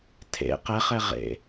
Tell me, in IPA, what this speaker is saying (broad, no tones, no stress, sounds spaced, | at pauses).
tʰ ḛ q ɛ χ ɛ ʁ ḛ